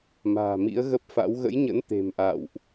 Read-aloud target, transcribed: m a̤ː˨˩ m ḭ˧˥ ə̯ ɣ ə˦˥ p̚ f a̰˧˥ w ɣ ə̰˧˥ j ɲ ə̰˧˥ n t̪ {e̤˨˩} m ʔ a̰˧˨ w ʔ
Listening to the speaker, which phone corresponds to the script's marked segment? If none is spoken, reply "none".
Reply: e̤˨˩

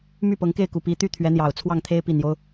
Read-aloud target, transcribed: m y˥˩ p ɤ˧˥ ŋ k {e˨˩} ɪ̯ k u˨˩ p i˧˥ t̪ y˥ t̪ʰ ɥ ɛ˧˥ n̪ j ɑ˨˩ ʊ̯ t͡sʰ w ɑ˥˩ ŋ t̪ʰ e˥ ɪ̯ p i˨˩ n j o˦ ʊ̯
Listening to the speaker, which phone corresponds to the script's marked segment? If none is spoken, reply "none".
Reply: e˥˩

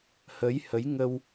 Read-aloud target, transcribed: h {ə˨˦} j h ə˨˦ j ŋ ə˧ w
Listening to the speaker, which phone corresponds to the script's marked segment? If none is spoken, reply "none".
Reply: ə˨˦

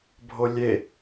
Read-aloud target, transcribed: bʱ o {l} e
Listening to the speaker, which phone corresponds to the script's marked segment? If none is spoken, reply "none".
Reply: lʲ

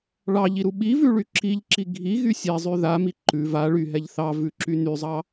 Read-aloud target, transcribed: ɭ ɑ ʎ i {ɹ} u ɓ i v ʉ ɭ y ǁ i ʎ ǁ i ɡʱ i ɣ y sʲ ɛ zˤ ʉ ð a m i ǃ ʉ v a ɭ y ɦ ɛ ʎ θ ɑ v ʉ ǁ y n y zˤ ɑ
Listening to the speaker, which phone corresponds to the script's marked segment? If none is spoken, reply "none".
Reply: ɾ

